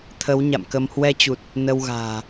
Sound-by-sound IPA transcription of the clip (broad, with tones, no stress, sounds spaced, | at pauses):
t̪ʰ ə˨˦ w ɲ a̰˧˨ m k ə˧ m h w ɛ˧ t͡ɕ u˨˩ t̚ | n ə˧ w ɣ a̤ː˨˩